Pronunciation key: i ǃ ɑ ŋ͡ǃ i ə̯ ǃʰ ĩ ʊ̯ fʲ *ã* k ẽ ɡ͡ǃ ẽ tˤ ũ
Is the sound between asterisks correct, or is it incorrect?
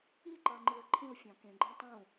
incorrect